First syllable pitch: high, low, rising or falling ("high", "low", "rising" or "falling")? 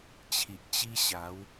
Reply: low